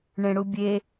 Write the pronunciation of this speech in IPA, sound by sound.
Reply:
ɳ ẽ ɽ u bʲ e

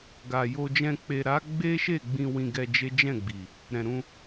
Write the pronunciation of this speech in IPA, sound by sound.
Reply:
ɡ a˨ j o˧ d͡ʒ ɛ̃˧ k͡p e˨ ɾ a˨˦ ɡ͡b e˦ ʃ e˦˨ ɡ͡b ĩ˧ w ĩ˧ ɡ ɛ˧ d͡ʒ e˦ d͡ʒ ɛ̃˦˨ ɡ͡b i˨ | ɾ ɛ̃˨ ɾ ũ˧

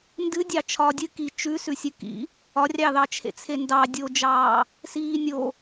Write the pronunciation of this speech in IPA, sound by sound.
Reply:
n d ɨ dʲ ɑ t͡ʃʰ ɒː dʲ ɨ k i t͡ʃ ʉ s ʉ sʲ ɨ k ḭ | ɒ rʲ ɑ ð ɑ t͡ʃʰ ḛ t͡sʰ e n d ɑ dʲ o d͡ʒ ɑː | s iː nʲ o

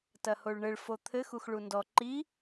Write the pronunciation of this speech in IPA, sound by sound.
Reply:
t ɐ h o ɭ ɳ ɘ ɭ f o t̪ʰ ɘ x u x ɭ u n d ɔ ǃ i

